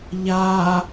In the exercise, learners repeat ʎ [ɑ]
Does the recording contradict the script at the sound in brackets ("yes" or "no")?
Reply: yes